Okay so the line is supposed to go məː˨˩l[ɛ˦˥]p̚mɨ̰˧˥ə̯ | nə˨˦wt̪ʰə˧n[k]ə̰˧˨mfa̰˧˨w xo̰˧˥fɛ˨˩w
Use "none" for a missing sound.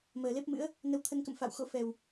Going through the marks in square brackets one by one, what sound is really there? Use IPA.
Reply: e˦˥, k

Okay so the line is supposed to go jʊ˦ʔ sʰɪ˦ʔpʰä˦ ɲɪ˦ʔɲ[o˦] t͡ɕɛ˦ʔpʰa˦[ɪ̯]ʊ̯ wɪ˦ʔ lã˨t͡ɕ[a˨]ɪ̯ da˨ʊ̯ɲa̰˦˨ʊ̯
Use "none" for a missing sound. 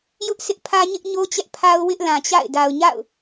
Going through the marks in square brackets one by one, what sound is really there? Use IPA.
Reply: o˦, none, a̰˦˨

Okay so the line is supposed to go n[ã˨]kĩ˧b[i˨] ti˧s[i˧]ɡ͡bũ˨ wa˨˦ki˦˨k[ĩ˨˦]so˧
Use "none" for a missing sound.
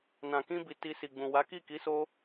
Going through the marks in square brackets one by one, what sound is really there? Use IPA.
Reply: ã˨, i˨, i˨, i˨˦

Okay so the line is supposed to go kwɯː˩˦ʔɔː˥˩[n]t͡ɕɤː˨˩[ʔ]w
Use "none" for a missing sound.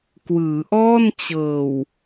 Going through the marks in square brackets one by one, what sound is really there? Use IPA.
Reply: n, none

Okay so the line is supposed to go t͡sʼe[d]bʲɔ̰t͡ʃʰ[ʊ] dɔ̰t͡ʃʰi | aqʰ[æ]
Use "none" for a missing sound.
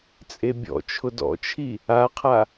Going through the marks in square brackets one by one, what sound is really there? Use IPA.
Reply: none, ʊ, a

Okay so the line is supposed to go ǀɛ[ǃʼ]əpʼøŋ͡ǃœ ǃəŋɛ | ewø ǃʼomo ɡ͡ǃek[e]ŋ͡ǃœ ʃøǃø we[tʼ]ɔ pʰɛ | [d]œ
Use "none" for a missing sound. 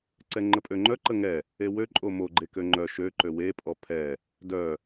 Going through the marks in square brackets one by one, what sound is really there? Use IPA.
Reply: ŋ͡ǃ, ø, pʼ, d

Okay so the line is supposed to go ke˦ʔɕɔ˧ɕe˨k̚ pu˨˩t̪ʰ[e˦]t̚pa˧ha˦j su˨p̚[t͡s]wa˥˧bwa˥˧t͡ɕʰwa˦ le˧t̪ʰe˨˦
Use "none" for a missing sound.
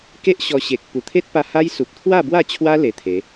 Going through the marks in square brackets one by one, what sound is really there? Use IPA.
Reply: e˦, t̪ʰ

